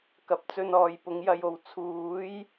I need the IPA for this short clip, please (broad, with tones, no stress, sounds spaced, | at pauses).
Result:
k ɐ˨ p̚ t͡s ɵ˧ n ɔː˨ j p ʊ˨˧ ŋ j ɐ˧ j o˨ w t͡sʰ uː˨˥ j